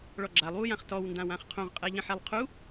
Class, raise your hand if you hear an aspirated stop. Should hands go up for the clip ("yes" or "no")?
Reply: yes